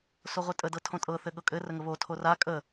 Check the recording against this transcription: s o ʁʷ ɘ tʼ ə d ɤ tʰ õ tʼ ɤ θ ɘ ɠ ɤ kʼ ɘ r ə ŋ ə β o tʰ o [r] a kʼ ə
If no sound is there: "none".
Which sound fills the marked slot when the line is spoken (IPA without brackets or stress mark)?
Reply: r